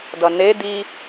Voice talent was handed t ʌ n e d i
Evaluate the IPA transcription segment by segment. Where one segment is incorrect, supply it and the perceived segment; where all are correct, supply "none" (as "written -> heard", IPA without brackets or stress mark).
t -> d